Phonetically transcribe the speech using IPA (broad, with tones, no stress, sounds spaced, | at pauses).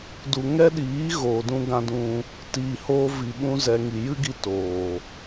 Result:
d u˨ ŋ ɛ˦ ɗ iː˨˦ ɣ oː˨ d ũ˧ ɡ ã˧ d ũ˧ | t iː˨ h oː˧ v i˨ ɓ ũ˧ z ɛ˧ ŋ i˨ j ɨ˦ ɡ i˧ t oː˨